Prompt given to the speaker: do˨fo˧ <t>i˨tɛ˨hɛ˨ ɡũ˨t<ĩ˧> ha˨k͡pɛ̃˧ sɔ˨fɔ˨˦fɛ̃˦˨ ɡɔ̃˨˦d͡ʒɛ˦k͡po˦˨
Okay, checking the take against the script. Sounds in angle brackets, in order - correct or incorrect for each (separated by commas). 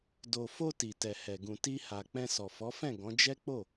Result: correct, incorrect